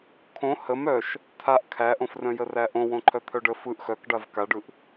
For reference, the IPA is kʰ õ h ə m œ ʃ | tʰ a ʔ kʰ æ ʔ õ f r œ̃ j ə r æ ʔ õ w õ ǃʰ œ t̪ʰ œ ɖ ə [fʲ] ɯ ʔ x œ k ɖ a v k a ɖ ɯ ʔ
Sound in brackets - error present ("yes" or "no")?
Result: yes